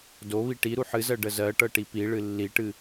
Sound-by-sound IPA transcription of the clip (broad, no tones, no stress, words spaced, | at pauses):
doβi ʈi ɾuħɨzɜ ɖəzɜʈɤ ʈipiɭɨ lːiʈɨ